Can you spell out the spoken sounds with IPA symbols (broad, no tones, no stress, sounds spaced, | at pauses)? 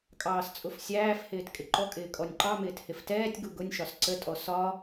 kʼ ɑː s t͡sʼ ʊ f sʲ æː f h ɪː t kʼ ɪ ǃ ɔ kʼ ɪː kʼ ɔ nʲ ǃ ɑ m ɪː t h ɪ f t ɛː tʲ ɡ u ɡ ʊ nʲ ʃ ɒ s ǀ ə tʼ ɔ s ɒ